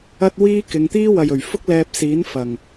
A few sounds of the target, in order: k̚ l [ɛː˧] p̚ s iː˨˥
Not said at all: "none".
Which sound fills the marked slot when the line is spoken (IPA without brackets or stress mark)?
ɛː˧